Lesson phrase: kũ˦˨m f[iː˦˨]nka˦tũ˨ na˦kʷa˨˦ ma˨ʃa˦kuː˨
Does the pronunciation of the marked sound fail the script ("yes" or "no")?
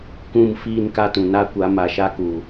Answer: no